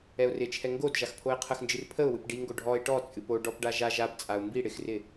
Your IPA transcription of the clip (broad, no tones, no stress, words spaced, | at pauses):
ɛʊ̯rɪt͡ʃʰɛ ŋɡod ʒaxpʰoɪ̯qʰəxnd͡ʒɨr pʰəʊ̯wɨp ɖiŋɡo ɖʱɔɪ̯ ʈɔt͡sʼɨp o ɖɔpɖa ʒaʒ apt͡sʼaʊ̯ mbi ɽɪxrɪ